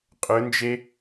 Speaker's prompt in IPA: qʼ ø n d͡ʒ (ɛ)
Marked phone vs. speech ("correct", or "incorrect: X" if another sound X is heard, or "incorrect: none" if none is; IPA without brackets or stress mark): incorrect: e